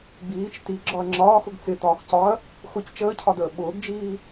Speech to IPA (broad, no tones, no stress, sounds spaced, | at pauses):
ɡ͡b iː t͡ʃ t i ɡ͡ǁ ɒ ɐ̯ ŋ͡ǁ ɒː x ʊ ɡ t͡s ɪ t ɒː x c ɒ ɐ̯ | x ʊ c t͡ʃ əː cʰ ɒ d əː ɓ ʊː ɡ d͡ʒ iː